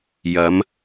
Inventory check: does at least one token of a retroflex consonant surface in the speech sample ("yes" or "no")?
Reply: no